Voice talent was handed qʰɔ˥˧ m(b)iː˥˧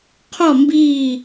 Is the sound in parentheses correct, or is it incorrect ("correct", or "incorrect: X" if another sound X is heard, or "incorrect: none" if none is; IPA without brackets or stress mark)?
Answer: correct